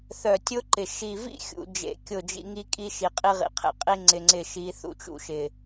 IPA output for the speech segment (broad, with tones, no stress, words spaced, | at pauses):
θœ˨tʲʊ˦ǃɪ˨ ʃi˨vḭ˦xʲṵ˨ d͡ʒḛ˨˦ kʲʊ˦˨d͡ʒḭ˦ ŋi˦kʼi˦ʃi˨ qʼi˦ʁḭ˨qʰḛ˨qʼi˦ ŋ͡ǀɪ˨ŋ͡ǀɪ˦˨ ʃi˨˦θṵ˨t͡ʃṵ˦ ʃɪ˨